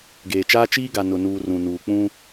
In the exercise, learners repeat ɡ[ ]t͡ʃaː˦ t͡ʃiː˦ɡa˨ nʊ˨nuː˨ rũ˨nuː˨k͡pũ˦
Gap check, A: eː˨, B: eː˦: A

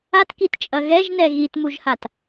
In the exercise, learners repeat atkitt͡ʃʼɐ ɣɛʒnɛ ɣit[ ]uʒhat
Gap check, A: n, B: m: B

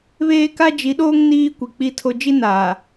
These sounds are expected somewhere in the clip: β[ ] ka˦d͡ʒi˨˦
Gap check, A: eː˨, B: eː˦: B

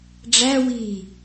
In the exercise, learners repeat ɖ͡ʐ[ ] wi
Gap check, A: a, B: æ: B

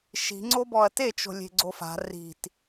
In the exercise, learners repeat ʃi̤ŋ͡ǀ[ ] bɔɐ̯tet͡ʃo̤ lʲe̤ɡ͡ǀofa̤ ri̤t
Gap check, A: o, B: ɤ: A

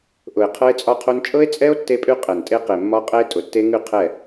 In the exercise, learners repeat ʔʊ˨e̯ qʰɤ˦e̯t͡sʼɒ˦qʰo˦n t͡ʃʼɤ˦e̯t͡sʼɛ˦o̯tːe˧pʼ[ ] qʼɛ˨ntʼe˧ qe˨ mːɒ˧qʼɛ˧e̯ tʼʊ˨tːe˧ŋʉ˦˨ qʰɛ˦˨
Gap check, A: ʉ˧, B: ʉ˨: A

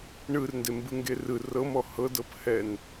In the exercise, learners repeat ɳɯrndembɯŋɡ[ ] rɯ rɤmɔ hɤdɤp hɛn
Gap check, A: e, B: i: A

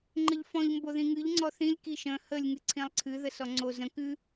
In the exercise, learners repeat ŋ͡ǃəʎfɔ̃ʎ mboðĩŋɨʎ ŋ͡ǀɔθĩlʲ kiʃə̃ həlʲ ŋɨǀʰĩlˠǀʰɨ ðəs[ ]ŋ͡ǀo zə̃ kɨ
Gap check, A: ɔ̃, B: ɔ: B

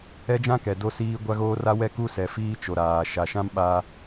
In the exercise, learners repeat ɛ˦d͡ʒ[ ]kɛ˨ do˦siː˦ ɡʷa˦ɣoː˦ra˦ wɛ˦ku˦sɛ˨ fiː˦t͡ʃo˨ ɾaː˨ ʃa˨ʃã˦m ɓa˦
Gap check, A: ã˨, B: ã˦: B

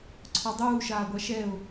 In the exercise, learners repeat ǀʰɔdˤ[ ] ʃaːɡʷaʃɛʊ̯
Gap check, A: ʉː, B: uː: B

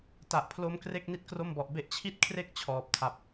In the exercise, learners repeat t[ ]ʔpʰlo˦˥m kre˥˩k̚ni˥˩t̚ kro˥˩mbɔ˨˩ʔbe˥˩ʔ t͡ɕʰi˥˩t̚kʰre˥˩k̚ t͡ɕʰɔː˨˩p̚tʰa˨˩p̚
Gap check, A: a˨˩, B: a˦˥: A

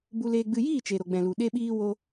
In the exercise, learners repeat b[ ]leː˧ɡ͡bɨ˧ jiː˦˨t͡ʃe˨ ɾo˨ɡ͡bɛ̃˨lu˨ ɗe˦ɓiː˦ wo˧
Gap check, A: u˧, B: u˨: A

